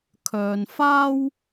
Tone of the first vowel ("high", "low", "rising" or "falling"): low